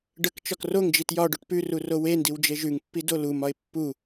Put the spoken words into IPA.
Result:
ɖ ə k t͡ʃ ɒ k r o ŋ d͡ʒ i t j ɒ ɖ o ʈ p ʉ r u r o w e n d i w d͡ʒ e ʒ ʉ ŋ pː i d o l u m ɒ ɪ̯ pː u

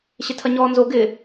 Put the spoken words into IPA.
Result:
ɕ ɪ tʰ ɐ ɲ ɔː n z o ɡ ɪ

